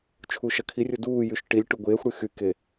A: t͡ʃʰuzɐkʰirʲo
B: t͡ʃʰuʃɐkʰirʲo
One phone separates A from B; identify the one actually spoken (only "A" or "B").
B